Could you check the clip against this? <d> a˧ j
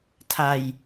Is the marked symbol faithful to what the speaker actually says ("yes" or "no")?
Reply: no